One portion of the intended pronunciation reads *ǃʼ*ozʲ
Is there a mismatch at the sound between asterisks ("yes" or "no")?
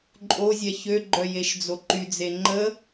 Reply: no